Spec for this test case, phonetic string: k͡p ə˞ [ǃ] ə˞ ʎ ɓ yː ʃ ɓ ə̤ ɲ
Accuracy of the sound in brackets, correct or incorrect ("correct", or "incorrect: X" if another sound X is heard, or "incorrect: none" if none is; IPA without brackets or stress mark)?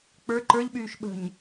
correct